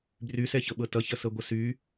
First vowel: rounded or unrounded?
rounded